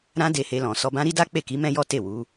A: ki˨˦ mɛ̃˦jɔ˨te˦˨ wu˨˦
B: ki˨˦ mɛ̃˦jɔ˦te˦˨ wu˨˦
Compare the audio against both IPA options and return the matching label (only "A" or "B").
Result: B